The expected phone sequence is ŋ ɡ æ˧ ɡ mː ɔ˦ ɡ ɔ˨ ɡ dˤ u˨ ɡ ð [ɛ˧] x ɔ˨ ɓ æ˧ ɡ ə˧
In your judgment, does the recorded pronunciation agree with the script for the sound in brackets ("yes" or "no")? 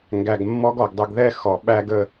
yes